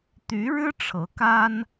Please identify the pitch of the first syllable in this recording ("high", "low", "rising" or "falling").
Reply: rising